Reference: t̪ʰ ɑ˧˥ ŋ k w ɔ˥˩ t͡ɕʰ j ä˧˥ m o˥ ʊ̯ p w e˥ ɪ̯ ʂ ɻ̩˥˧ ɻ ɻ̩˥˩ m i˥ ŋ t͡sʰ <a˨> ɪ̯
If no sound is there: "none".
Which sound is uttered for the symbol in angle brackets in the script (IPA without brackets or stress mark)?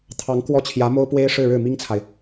a˨